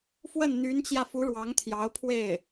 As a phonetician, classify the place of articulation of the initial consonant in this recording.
labial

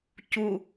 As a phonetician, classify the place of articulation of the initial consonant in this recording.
palatal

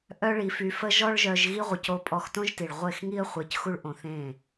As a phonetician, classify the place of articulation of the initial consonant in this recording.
glottal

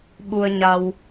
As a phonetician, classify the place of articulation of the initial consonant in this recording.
labial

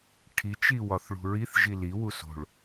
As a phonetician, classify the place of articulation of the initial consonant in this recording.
retroflex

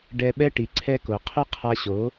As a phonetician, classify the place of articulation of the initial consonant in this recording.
retroflex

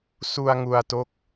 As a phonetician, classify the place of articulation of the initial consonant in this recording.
alveolar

